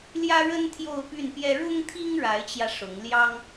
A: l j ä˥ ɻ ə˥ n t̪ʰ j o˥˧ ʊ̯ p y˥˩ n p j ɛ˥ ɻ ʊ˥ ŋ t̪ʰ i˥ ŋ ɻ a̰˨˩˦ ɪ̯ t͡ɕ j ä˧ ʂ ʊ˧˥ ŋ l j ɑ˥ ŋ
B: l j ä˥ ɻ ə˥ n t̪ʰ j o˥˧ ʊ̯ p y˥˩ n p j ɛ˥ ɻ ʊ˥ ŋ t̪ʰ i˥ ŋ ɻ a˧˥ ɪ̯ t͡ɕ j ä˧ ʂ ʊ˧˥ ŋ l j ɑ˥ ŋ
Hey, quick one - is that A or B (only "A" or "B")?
B